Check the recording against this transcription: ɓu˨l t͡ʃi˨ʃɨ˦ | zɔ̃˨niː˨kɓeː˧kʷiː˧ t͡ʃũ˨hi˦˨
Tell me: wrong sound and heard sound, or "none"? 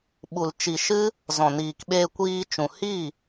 none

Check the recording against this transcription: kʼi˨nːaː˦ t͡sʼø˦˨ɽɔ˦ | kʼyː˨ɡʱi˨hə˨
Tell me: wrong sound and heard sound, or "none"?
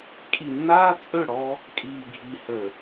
yː˨ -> iː˨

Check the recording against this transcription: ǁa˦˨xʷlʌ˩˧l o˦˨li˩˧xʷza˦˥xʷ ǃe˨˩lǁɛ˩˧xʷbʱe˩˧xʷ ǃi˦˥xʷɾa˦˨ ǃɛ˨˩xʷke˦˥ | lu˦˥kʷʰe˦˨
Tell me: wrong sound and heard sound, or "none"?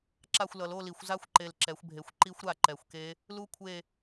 none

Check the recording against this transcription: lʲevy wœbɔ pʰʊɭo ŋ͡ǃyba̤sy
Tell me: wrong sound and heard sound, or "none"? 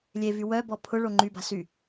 none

